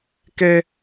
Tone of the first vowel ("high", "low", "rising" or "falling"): high